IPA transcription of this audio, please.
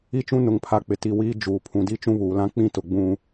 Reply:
i˦ t͡ʃ ũ˦ n ʊ˨ ŋ pʰ a˨ k͡p ɪ˨ t i˨ w iː˦ d͡ʒ uː˨ pʰ ũ˨ d i˦ t͡ʃ ũ˦ β uː˨ l ã˦ k͡p ĩ˦ t ʊ˨ ɡ͡b ũ˦

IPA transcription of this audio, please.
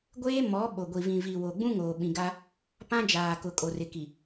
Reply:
ɡʷ eː˦ m ɔ˨˦ ɓ o˨ ɡʷ i˨ v ĩ˨ v i˨ w o˨ ɡ͡b ũ˦ ŋ oː˨ ɓ ĩ˨ ɡ a˦ | p ã˦ d͡ʒ aː˨ k ʊ˨ kʼ o˨ r ɪ˨ k i˨

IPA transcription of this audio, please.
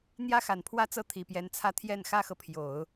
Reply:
n̪ j ä˥ x a˨˩ n pʰ w ä˥ t͡s ɤ˥˩ t̪ʰ i˨˩ p j ɛ˧˥ n t͡sʰ ä˥˧ t̪ʰ j ɛ˥˩ n x ä˥ x ɤ˨ pʰ j o˨˩˦ ʊ̯

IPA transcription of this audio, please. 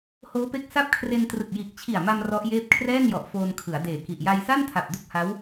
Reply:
h oː˦˥ p e˦˥ k̚ s a˦˥ p̚ kʰ r e˧ n t r ɯ˨˩ k̚ j iː˨˩ k̚ t͡ɕʰ i˨˩ a̯ m a˧ m r ɔ˦˥ ʔ j eː˥˩ p̚ kʰ r ɛː˥˩ n j ɔ˨˩ ʔ f oː˧ n kʰ ɯ˩˦ a̯ d eː˨˩ k i˨˩ ʔ j a˧ j s a˥˩ n tʰ a˨˩ p̚ d u˥˩ k̚ h a˦˥ w

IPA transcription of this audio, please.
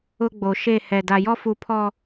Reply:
ʊ˦ ɡ͡b o˨ ʃ e˦˨ h ɛ˨ d a˨ j ɔ˦ f u˨ pʰ ɔ˨

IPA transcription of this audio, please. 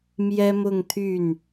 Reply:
m j ɛ˥ m ʊ˥˧ ŋ t̪ʰ y˥˩ n

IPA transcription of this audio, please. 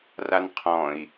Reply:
r a n qʰ ɔ̃ i̯

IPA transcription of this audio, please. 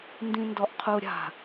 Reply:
n d ĩ n d ɔ ʔ qʰ u ɾʲ a̤

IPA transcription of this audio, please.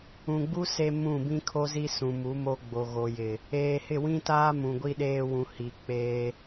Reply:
ũ˨ ɡ͡b u˦ s e˦ m ũ˦˨ b ĩ˦ kʰ o˦ z i˦ s ũ˨ m u˨˦ m o˦ ɡ͡b o˨ ɣ o˨ j ɪ˨ | eː˨ h ɪ˦˨ w ĩ˦ t aː˦ m ũ˨ ɡʷ i˦ ɗ eː˦ w ũ˨ h i˨ k͡p eː˦

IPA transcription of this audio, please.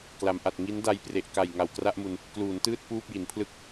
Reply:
k l a˩˦ m ʔ a˨˩ t̚ ŋ i˦˥ n d a˧ j p r e˨˩ ʔ k a˨˩ j ŋ a˨˩ w k r a˥˩ ʔ m u˧ n | k l uː˩˦ n t ɯː˥˩ t̚ p uː˥˩ p̚ j i˩˦ n pʰ l ɯ˥˩ k̚

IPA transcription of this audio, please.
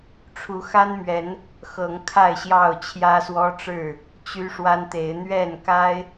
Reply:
ʈ͡ʂʰ u˨˦ x a˦ n m ɥ ɛ˨˦ n | x ɤ˨˦ ŋ kʰ a˥˨ ɪ̯ ɕ j ɑ˥˨ ʊ̯ t͡ɕʰ j ä˦ s w ɔ˦ ʈ͡ʂ ɻ̩˥˨ | t͡ɕ y˦ ʂ w a˦ n t̪ e˨˦ ɪ̯ n̪ ɥ ɛ˥˨ n k a˦ ɪ̯

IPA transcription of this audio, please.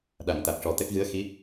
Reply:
ɗ a˨˩˨ ŋ t̪ a˨˩ k̚ ʂ ɔ˨˩ t̪ ɛ˦˥ k̚ ɣ ɨ˧˥ ə̯ x i˧˥

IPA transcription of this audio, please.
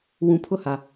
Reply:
w ũ˨ pʰ ʊ˦ h a˨

